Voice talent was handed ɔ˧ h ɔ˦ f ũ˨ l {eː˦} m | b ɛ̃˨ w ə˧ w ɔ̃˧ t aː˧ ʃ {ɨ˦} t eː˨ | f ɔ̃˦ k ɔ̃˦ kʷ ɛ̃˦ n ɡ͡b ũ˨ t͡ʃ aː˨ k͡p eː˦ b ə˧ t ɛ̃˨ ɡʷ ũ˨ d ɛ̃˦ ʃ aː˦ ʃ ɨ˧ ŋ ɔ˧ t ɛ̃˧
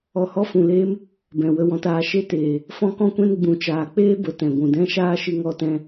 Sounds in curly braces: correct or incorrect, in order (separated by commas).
correct, incorrect